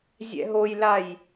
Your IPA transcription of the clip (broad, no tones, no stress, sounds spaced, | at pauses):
zʲ ɛ̰ ɦ o j l a j